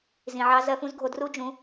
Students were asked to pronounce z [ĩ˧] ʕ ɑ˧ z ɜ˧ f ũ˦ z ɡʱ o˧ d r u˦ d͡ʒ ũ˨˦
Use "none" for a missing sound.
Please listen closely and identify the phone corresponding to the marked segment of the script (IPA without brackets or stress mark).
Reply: ĩ˨